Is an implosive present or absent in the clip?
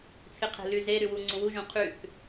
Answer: absent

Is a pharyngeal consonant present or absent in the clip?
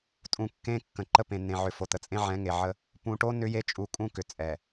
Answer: present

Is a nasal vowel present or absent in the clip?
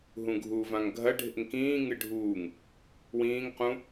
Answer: present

